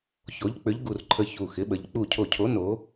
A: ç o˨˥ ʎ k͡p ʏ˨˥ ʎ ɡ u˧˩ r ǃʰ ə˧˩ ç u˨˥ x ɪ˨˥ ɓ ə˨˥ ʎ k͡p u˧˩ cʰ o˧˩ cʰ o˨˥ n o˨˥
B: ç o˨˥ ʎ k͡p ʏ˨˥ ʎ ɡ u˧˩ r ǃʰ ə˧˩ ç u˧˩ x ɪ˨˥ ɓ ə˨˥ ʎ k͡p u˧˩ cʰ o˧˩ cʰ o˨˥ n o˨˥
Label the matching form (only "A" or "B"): B